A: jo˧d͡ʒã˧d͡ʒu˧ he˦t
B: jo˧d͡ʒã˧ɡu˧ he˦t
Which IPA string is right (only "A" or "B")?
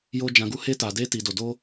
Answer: B